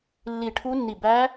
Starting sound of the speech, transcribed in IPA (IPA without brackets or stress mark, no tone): lː